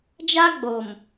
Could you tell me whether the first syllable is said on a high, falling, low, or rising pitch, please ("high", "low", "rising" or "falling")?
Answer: high